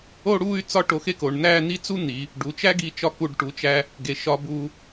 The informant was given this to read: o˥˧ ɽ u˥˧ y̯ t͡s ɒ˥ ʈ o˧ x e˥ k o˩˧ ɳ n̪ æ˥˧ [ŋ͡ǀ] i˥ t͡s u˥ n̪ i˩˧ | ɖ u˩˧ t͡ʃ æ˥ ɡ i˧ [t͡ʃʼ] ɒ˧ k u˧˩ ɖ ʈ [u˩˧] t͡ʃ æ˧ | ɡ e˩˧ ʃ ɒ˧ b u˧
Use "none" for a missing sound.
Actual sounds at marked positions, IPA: n̪, t͡ʃ, u˩˧

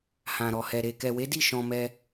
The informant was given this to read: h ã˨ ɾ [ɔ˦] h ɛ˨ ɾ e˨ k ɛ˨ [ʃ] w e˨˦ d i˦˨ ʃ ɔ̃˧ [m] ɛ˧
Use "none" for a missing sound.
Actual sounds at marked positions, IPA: ɔ˨, none, m

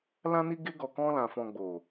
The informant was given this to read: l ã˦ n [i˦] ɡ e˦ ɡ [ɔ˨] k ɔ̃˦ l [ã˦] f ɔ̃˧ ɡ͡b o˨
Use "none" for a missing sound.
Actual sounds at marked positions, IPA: i˦, ɔ˧, ã˧

